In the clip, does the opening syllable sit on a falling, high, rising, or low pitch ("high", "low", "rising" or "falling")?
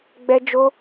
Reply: high